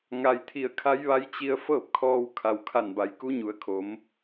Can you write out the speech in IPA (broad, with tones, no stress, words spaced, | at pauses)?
ŋa˩jt̪ʰi˧˩ə̯kʰa˧˥jʋa˧˥j t͡ɕi˧ə̯ fɤː˥˨p̚kʰɔː˧w kʰa˩wkʰa˧˩nba˩˧j ku˧˥ɲu˩˧ə̯kʰo˩˧m